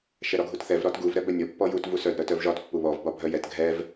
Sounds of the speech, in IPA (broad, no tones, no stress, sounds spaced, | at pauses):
ʃ ɛ ɾ ɒ ɡʱ u t θ ɛ v ɾ ɒ t ɡ u v ɾ ɛ b œ nʲ ɒ pː ɔ j u t v u s œ d ɾ œ t œ v ʒ ɒ t pː u β ɔ v b ɒ bʱ œ j ɛ t ɡʱ ɛ v